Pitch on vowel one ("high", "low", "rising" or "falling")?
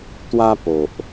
high